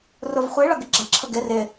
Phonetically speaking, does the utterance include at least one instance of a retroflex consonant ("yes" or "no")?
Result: yes